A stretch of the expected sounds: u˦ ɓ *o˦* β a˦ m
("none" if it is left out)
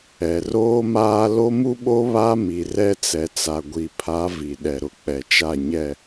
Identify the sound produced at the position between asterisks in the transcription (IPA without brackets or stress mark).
o˦